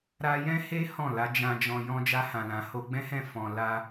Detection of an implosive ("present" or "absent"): absent